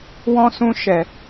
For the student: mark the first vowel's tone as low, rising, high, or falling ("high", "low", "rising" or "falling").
high